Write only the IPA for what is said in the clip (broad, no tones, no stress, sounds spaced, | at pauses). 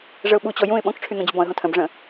ʐ ə ʊ̯ ɓ u t͡ɕ ɔ j ũ ɪ̯ ɓ ɔ̃ k ʈ͡ʂʰ y n̪ õ d͡ʑ y b ɔ̃ ə̯ ɦ õ tʰ ə̃ b ʐ ə̃